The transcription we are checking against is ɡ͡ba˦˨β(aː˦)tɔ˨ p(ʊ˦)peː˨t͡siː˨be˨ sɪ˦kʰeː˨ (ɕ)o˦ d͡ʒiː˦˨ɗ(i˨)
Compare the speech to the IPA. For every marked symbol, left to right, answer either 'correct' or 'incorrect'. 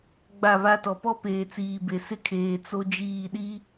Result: incorrect, incorrect, incorrect, incorrect

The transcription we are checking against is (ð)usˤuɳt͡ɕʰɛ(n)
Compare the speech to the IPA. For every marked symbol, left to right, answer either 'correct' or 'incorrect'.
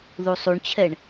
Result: correct, incorrect

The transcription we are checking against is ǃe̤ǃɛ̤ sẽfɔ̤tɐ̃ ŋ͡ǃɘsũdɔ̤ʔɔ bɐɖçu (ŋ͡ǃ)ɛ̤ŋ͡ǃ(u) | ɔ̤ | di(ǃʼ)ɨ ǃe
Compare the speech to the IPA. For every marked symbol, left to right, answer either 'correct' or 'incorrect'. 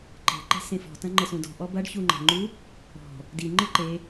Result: correct, correct, incorrect

